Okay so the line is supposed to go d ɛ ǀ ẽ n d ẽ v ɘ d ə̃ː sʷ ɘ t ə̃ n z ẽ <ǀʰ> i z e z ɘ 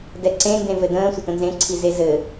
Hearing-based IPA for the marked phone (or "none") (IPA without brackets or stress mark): ǀʰ